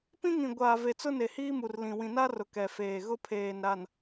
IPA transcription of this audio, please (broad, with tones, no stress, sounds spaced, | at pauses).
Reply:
p ĩ˦ ŋ ĩ˨ ɡʷ aː˨ v e˨ t͡s ʊ˦ n e˨ h iː˦ m u˨ r l ĩ˨ w ĩ˨ n a˦ r ʊ˨ k ɛ˨ f eː˨ ɣ ʊ˦ pʰ eː˨ n ɾ a˨ n